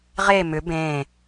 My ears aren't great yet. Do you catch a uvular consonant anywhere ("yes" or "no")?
yes